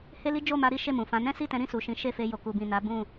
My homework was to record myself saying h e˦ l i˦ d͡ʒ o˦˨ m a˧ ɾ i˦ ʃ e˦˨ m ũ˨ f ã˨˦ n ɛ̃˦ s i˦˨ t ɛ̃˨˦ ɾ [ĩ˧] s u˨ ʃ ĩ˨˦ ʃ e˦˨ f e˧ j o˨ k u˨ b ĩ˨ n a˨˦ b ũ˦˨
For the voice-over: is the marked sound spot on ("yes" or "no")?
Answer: yes